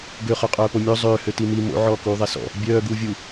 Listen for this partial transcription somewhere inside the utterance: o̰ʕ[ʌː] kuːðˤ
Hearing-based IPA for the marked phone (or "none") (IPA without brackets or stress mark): ɔː